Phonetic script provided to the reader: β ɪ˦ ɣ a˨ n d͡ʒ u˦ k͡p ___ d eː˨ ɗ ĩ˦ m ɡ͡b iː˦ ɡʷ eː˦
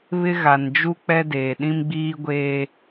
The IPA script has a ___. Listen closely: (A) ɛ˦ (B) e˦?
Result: A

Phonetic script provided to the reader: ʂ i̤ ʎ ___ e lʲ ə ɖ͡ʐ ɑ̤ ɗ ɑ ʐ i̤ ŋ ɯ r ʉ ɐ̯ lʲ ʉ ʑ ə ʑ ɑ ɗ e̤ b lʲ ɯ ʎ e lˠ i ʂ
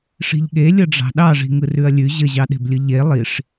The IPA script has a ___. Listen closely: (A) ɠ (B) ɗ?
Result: A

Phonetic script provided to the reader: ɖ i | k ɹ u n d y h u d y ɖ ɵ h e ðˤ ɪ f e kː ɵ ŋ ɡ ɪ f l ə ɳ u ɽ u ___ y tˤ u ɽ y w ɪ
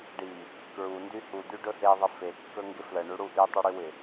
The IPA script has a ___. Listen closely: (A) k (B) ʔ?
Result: B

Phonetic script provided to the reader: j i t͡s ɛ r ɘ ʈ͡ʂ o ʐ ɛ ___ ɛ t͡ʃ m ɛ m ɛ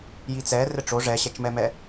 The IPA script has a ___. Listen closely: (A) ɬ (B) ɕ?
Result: B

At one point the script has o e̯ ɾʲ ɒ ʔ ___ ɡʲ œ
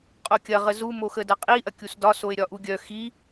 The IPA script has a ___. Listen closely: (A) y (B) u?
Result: B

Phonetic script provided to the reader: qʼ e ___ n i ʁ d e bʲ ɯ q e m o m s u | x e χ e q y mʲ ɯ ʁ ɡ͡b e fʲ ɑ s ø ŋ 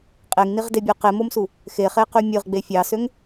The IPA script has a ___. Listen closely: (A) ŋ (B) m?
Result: A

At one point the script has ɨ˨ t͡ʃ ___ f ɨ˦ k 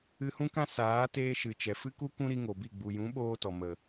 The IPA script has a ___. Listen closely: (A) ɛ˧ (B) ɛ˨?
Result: B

